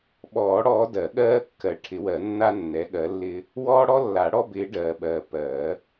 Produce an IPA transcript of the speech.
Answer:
ɓ ɔː˨˩˦ ɽ ɔː˨˦ d ɜ˨˩˦ ɠ ɜː˦ kː ɜ˨ ʈʰ ɪ˨˩˦ w ɜ˨˩˦ nː a˦ nː ɛ˨˦ ɠ ɜ˨˦ lː ɪː˦ | w ɔː˦ ɽ ɔ˦ lː a˨˩˦ ɽ ɔ˦ b ɪː˨˦ ɖ ɜː˨ ɓ ɜː˨ p ɜː˨˩˦

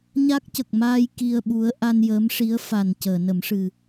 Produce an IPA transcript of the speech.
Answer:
ɲ a˦˥ k̚ c ə˨˩ k̚ m aː˧ j k i˧ ə̯ ɓ u˧˥ ə̯ ʔ a˧ n j əː˧˥ m ʂ i˧˥ ə̯ f a˨˩ n c əː˨˩˨ n ə˨˩˦ m ʂ ɨ˨˩

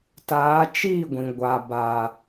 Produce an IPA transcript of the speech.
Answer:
t aː˨˦ t͡ʃ iː˦˨ ɡʷ ĩ˨ ɡʷ a˨ b a˨

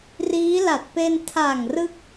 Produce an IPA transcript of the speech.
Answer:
r iː˦˥ l a˨˩ t̚ p e˧ n tʰ a˨˩ ŋ r ɯ˥˩ k̚

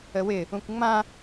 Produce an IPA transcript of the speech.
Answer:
ə w ɪ | ũ kʷ ŋ͡m ã

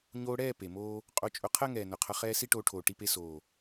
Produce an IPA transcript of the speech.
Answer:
ɲ oː˧ ɽ ɛː˦˨ p e˨ m oː˦ | qʼ o˧ t͡ʃʼ ʊ˧ qʰ ɜ˦ ŋ ɛː˨ n ʊ˨ qʰ ʌ˧ χ ɛː˦ s i˦ ʈ oː˧ ʈʰ oː˨ ʈ i˧ p e˧ s oː˨

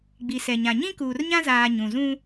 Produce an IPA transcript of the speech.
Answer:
ɡ͡b i˨ s ɛ˨ ɲ ã˨ ɲ ĩ˦ k uː˨ r ɲ ã˦ z aː˨ ɲ ũ˨ z ũ˦

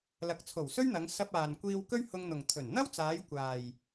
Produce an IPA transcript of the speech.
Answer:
l ɐ˨˥ k̚ t͡sʰ o˨˩ w s ɵ˥ ɥ n̪ ɐ˨˧ ŋ s ɐ˧ p̚ aː˨ n kʷ iː˧ w k ɵ˥ ɥ h ʊ˧ ŋ n̪ ʊ˨ ŋ t̪ʰ ɵ˨˩ n n̪ ɐ˥ w t͡s aː˨˧ j kʷ aː˨ j

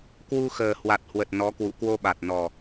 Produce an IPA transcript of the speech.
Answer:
k w u˧ x əː˨˩ h w a˨˩ t̚ h w ə˨˩ t̚ n ɔ˨˦ k w ṵ˧˨ k w o˧ ɓ a˨˩ t̚ n ɔ˨˩

